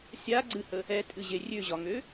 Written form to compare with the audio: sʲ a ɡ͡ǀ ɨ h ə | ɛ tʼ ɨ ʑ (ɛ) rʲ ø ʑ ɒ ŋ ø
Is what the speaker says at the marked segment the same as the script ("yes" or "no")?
no